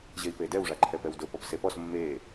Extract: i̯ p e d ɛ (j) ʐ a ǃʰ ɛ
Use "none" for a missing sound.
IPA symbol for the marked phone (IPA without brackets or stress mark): w